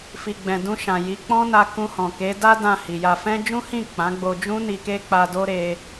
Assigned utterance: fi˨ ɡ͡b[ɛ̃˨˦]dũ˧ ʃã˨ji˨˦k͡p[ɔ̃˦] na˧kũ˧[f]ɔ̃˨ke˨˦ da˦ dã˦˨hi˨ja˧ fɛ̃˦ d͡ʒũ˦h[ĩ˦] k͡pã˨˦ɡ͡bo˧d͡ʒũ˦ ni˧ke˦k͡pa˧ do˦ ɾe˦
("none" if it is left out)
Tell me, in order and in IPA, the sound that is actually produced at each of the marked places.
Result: ɛ̃˨, ɔ̃˦, h, ĩ˦˨

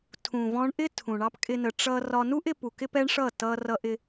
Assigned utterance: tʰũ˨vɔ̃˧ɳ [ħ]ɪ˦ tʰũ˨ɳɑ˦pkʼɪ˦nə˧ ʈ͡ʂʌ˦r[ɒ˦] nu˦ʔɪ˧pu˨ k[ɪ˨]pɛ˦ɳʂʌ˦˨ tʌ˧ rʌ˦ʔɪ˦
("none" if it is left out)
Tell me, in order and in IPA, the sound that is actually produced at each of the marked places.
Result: ʔ, ɒ˦, ɪ˦

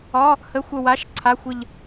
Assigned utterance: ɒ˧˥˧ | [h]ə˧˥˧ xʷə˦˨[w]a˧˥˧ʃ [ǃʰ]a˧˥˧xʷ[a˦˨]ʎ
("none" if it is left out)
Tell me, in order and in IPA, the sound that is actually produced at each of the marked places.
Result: h, w, ǀʰ, ə˦˨

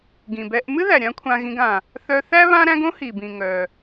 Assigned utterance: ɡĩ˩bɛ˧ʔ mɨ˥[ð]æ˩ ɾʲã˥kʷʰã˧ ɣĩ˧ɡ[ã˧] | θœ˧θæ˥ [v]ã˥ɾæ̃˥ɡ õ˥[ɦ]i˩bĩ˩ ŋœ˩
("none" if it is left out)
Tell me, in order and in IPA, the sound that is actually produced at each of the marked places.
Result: ð, ã˩, β, h

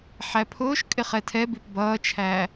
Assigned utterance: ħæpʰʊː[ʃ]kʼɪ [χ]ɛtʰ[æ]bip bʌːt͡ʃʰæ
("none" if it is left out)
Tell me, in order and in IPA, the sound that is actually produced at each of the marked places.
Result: ʃ, χ, ɛ

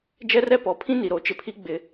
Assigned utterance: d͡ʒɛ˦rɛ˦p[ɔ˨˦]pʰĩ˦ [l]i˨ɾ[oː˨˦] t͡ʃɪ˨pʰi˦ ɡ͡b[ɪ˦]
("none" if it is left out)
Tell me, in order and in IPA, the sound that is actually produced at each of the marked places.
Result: ɔ˨˦, n, o˨˦, ɪ˦

